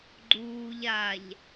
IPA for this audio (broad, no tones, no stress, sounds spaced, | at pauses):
ɡ͡ǃ uː ʎ a ʎ